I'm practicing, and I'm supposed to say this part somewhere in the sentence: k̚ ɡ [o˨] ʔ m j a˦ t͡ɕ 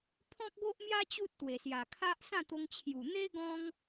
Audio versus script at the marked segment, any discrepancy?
yes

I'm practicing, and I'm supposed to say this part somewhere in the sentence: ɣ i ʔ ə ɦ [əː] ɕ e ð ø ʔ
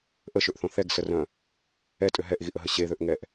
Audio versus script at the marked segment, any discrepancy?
yes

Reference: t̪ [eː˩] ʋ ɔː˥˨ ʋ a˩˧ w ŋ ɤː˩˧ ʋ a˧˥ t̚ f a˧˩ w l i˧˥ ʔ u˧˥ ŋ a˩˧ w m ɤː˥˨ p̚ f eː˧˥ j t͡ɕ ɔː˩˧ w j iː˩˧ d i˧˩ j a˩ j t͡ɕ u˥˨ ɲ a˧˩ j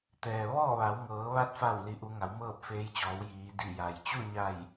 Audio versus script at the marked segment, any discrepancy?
yes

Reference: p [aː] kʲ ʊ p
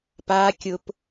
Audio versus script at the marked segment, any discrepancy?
no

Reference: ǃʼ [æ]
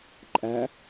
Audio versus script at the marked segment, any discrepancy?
no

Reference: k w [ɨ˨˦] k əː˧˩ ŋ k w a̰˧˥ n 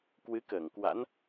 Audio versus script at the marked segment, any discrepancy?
no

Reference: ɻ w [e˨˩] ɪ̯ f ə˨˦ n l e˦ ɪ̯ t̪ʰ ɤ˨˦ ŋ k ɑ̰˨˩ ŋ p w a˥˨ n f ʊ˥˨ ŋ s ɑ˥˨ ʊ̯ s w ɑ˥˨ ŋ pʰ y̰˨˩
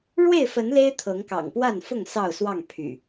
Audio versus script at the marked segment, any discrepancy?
yes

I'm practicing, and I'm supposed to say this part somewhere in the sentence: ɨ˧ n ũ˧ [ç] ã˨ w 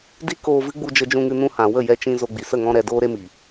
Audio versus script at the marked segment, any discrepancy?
yes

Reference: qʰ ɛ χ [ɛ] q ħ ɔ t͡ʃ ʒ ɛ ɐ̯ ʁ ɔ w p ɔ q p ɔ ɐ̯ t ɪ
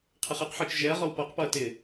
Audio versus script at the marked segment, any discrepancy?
no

